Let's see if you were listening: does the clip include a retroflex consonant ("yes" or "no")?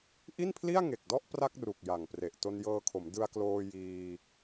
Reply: no